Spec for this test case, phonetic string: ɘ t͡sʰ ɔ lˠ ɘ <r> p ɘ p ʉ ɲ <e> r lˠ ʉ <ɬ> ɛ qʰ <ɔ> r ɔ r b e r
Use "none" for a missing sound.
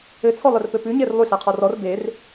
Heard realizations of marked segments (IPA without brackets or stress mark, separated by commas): r, e, ɬ, ɔ